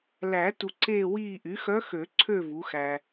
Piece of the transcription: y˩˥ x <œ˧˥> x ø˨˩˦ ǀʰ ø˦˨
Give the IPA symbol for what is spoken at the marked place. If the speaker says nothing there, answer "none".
œ˧˥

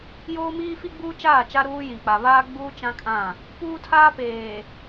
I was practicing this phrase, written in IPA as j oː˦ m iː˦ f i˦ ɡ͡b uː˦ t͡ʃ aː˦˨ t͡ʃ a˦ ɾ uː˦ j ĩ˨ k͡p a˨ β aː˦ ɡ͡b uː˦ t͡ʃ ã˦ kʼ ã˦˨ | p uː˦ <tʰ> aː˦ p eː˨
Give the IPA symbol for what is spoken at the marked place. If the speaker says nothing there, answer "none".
tʰ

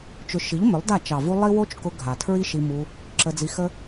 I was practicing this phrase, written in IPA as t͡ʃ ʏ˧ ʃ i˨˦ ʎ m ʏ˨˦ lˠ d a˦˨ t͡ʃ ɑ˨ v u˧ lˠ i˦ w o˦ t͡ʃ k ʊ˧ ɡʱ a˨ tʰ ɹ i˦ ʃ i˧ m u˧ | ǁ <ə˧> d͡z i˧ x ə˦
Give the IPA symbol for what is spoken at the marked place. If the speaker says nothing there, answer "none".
ə˧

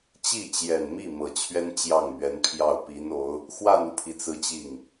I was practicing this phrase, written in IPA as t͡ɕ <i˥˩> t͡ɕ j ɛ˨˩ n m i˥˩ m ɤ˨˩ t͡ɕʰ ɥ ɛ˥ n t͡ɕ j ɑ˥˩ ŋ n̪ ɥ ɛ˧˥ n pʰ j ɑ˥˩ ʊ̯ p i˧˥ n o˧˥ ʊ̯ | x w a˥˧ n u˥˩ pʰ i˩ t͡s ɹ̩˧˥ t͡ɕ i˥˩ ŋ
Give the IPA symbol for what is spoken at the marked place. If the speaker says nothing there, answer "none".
i˥˩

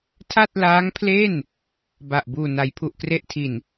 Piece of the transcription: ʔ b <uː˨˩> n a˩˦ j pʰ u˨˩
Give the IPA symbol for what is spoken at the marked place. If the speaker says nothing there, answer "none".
uː˨˩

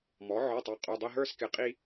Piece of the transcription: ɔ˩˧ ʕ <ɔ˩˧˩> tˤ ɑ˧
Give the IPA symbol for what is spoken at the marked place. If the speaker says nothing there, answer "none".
ɔ˩˧˩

